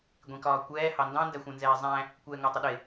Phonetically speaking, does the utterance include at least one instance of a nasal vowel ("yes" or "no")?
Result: yes